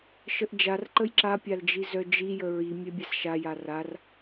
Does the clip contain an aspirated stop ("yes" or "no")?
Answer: no